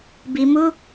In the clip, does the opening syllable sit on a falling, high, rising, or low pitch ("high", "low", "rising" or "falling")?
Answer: low